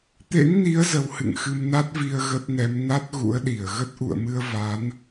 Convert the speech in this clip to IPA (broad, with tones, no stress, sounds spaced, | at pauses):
t̪ ḛ˧˥ ŋ n i˨˦ ə̯ z ə˨˦ w h ɨ̰˧˨ ŋ x ɨ˧ m n a˦˥ t̚ v i˧ ə̯ ɣ ə˦˥ t̚ n ɛ˨˦ m n a˦˥ t̚ ɣ ṵ˧˥ ə̯ ɗ i˧˩ ə̯ ɣ ə˦˥ t̚ ʔ ṵ˧˨ ə̯ m ɨ˧ ə̯ v a˨˦ n